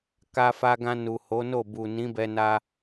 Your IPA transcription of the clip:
ka˧fa˧ɡã˧ nu˨ho˨˦no˦˨ bu˨ nĩ˨˦bɛ˧na˧

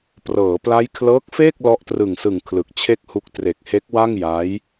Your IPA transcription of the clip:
prɤː˩˦pla˦˥j kʰlɤː˦˥k̚feː˥˩k̚ lɔ˦˥ʔtrɯ˨˩ŋsɯ˨˩ŋ kʰlɯ˨˩k̚t͡ɕʰe˥˩k̚hu˦˥k̚ tre˨˩k̚he˦˥k̚wa˥˩ŋ ja˦˥j

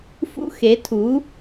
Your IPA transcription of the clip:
fṵ˥ xe˩˥tʰu˩˥

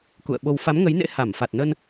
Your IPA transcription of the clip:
kṵ˧˨ə̯ɓo˧w fa˨˦mŋə˨˦jnḛ˧˥ ha˧˩mfa˨˩t̚nə˧n

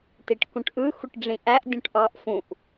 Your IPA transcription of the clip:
tiʈkũʈʔɯ xuʈɖ͡ʐĩʔæʔ dʲũʈʔɑʔ fũʔ

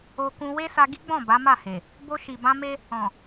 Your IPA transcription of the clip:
o˧kũ˧ we˦sa˧ɡi˦ɡ͡bɔ̃˦˨ ba˨˦ma˦˨he˨ | bo˧ʃi˨bã˧ me˦ | ɔ̃˨

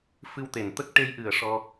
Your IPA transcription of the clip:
fɨ˧wt̪e˨˩nt̪ə˦˥k̚ ʈe˧jʔɨ˨˩ə̯ ʂɔ˧

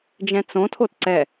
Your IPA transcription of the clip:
d͡ʒɛ̃t͡sõtʰot ǀɛ

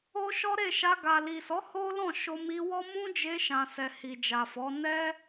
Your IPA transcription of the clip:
o˦ʃɔ˦ɾe˦˨ʃa˧ ɡa˨li˨sɔ˨˦ ho˦lɔ̃˦˨ ʃo˧mi˧wɔ˦ mũ˦d͡ʒe˧ ʃã˨sɛ˨ hi˨d͡ʒa˨fɔ˨˦ nɛ˦

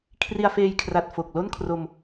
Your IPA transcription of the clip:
kʰri˧a̯feː˧jkʰra˨˩t̚ fo˨˩k̚lo˥˩nkʰro˧m

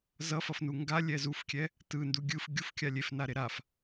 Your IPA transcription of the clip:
zʌfʌfnu ŋɡalʲɛ zufkʲɛ | tɯndu ɡʲɯf ɡʲufkʲa lʲefnaɾe ɾaf

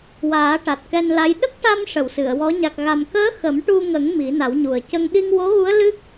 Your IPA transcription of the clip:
waː˨˩˦ʈa˨˩t̚ kɛ˧nla˧˥j ɗə˦˥k̚ ʈa˧m ʂə˨˩˨w sɨ˨˩˨ə̯wɔ˧˥ ɲa˨˩k̚ɣa˨˩mkəː˧˥ xə˨˩˦mʈu˧ŋə˨˩˦ŋ mi˨˩˦na˨˩˦wɲu˨˩ə̯ cə˧ŋ ɗi˧ŋwo˧˥ɣu˧˥ə̯ lɨ˦˥k̚

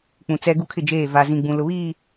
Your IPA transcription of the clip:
k͡pũ˨t͡sɛ˦ ɡu˦kʰɪ˦˨d͡ʒeː˦˨ va˨zĩ˨ɡ͡bũ˨ lʊ˨βiː˦˨

